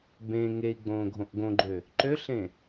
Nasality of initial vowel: nasal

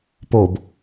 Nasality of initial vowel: oral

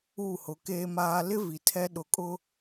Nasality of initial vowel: oral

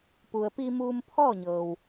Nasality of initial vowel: oral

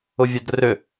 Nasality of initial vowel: oral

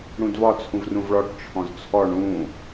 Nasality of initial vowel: nasal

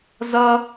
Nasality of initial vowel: oral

